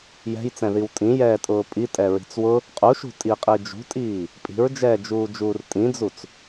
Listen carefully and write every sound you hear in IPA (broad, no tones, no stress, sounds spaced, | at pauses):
j ɛ̤ j t͡s ɛ̃ ð i w tʼ ĩ j ɛː tʼ ʊː pʼ i tʼ ɛ ɹ i̤ t͡s w ʊ | qʼ u ʃ ṳ tʼ i qʼ i d͡ʒ ṳ tʼ iː | pʼ i̤ ɹ d͡ʒ ɛː d͡ʒ uː d͡ʒ uː r tʼ ĩ d͡z u t͡s